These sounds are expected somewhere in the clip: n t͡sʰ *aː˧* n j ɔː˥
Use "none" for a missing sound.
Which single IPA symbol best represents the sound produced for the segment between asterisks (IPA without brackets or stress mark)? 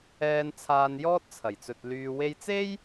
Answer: aː˧